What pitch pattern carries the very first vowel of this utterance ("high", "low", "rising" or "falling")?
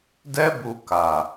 high